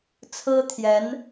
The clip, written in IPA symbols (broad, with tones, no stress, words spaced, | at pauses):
t͡sʰɹ̩˥t̪ʰjɛ˧˥n